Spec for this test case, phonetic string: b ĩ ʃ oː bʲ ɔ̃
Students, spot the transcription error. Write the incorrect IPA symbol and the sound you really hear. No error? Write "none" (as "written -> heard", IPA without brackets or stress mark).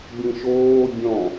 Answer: none